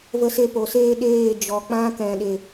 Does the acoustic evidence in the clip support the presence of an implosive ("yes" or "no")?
yes